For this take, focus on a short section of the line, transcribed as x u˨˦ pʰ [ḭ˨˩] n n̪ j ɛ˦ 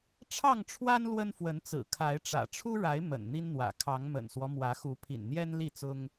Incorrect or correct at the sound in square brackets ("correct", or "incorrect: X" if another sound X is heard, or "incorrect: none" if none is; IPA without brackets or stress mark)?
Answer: correct